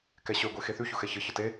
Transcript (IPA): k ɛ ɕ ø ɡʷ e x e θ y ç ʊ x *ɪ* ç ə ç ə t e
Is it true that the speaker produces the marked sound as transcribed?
no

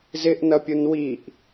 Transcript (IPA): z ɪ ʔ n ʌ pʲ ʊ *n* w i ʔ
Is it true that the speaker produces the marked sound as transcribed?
yes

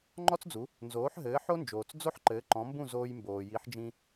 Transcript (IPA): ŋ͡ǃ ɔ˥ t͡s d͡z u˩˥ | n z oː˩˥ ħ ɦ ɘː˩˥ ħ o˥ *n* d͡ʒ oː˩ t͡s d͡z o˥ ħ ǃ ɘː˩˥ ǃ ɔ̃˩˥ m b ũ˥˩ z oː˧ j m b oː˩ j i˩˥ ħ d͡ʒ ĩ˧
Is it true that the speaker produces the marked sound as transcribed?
yes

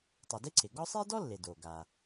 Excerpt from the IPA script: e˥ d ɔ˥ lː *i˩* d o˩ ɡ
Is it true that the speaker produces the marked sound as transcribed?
no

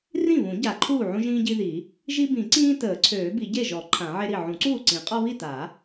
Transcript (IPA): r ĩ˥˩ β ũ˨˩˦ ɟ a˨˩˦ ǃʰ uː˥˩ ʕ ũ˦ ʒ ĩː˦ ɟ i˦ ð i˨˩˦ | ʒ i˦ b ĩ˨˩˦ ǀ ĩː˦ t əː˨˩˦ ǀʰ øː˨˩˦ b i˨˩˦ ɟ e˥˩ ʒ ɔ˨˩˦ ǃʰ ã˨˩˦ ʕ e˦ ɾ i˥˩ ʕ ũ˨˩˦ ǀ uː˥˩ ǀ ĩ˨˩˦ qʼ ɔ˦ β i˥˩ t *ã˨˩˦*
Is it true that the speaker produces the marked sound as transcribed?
no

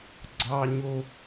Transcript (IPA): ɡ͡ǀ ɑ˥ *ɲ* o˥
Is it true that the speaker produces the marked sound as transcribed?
yes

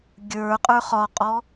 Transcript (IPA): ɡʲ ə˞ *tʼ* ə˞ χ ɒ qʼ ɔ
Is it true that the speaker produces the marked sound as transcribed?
no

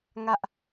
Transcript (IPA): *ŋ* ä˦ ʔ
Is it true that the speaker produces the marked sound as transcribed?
yes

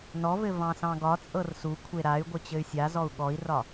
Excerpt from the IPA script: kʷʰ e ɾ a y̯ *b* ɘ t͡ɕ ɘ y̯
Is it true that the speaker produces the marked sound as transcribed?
no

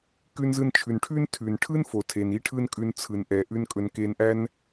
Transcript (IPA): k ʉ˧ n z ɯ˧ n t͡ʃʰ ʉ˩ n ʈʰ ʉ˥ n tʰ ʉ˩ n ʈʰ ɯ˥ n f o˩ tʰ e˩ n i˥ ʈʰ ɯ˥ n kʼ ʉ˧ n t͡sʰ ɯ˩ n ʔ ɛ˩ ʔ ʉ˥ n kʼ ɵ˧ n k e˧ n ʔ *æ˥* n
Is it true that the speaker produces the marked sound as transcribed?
yes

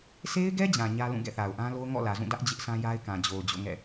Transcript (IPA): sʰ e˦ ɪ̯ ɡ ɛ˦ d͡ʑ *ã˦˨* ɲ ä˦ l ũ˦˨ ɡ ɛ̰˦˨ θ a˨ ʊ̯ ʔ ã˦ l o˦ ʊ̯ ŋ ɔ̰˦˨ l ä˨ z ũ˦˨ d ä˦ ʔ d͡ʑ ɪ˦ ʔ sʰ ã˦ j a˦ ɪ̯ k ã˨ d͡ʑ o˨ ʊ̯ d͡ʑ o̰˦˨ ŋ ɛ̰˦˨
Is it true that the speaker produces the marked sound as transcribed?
no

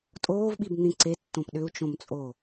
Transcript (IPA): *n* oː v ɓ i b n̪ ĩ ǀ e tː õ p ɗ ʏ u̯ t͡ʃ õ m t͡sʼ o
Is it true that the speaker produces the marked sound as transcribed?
no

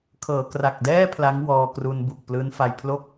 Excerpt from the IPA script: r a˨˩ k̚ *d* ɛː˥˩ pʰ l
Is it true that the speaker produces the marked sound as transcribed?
yes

